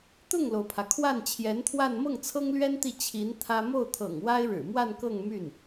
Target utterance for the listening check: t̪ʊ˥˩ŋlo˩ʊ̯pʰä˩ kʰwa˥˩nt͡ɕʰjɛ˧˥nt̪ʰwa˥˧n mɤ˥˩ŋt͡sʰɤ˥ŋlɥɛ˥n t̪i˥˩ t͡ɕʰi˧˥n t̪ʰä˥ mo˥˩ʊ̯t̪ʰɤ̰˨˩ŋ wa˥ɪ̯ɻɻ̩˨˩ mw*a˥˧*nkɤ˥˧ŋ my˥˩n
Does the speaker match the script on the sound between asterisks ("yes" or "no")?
yes